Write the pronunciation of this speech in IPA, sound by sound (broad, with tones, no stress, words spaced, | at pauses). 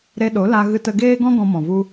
ɾe˧ɗo˨˦la˧ ɣɨ˧tə˧ɡeː˦ɡɔ̃˦ ɡɔ̃˧mɔ̃˨ vu˧